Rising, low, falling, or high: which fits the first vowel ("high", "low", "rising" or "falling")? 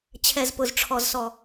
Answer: low